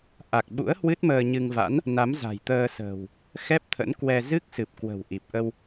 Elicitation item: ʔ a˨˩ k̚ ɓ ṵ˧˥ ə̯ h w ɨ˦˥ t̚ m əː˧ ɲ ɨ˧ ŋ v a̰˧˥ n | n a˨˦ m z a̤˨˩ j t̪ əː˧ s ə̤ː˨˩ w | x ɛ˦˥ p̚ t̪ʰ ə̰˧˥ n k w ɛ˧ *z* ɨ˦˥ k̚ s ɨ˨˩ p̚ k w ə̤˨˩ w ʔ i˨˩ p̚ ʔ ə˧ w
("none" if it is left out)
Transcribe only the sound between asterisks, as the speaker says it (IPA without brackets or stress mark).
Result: z